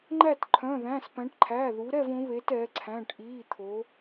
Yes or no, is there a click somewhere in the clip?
yes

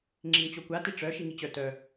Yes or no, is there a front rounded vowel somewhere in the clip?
yes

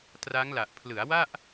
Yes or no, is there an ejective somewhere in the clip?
no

